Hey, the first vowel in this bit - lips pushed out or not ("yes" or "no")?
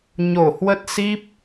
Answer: yes